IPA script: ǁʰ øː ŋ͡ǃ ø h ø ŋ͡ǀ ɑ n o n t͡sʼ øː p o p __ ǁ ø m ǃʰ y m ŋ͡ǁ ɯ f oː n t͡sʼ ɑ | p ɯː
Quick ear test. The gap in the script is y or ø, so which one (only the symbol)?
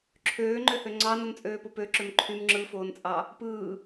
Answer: ø